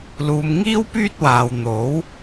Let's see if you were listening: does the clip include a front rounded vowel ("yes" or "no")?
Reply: yes